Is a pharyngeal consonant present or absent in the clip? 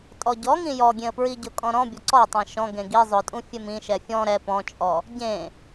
absent